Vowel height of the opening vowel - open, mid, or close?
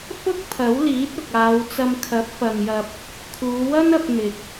close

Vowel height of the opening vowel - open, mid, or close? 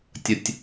mid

